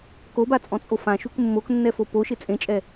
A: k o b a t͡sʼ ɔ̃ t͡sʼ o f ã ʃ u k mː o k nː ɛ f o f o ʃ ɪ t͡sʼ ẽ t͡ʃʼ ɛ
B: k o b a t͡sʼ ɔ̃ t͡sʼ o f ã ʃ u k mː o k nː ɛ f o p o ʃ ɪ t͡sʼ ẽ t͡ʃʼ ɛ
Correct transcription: B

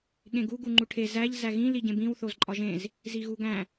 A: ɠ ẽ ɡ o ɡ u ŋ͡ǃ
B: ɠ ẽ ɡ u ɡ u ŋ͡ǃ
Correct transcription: B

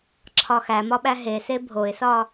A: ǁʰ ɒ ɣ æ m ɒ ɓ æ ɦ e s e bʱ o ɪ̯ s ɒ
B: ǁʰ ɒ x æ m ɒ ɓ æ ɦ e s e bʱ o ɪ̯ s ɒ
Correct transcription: B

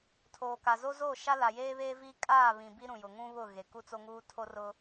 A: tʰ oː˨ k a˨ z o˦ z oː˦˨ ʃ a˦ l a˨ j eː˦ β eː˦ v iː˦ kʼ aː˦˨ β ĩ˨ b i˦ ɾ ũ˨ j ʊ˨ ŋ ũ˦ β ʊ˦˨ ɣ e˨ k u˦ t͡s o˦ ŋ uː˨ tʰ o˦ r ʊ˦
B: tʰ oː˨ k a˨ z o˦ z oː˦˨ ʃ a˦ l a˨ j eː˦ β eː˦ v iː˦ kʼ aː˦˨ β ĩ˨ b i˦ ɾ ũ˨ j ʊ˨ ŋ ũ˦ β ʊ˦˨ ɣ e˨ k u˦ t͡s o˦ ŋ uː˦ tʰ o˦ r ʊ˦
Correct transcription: B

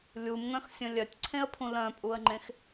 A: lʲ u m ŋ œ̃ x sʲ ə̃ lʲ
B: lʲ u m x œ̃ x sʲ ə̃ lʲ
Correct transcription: A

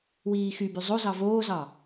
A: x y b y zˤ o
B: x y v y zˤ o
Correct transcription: A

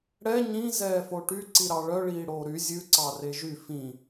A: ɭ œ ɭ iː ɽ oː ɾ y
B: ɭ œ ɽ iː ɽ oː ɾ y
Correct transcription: A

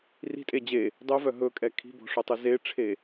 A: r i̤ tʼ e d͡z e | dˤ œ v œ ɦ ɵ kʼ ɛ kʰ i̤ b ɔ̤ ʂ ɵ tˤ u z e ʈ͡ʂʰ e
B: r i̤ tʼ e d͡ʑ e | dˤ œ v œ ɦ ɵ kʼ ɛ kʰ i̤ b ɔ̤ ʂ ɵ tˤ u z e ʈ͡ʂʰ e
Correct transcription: B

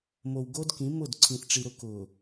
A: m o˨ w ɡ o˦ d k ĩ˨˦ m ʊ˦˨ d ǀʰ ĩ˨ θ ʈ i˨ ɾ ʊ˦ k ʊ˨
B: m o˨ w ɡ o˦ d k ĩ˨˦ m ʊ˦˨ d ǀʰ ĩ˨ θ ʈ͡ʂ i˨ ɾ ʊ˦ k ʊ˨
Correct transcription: B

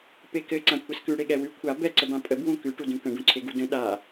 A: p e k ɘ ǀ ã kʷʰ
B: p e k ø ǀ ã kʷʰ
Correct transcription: A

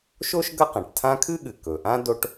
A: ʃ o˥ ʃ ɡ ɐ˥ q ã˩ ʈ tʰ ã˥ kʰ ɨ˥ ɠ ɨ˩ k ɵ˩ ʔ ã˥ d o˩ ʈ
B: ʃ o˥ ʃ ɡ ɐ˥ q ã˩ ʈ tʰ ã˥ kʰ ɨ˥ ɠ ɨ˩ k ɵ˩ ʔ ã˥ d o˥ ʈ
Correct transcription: B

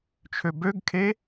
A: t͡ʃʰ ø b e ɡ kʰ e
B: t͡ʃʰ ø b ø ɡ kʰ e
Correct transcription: B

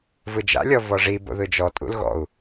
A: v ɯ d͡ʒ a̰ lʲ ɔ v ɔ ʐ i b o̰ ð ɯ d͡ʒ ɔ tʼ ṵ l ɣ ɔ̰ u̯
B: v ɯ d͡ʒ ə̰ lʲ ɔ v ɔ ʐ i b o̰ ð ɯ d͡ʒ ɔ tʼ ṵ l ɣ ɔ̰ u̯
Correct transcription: A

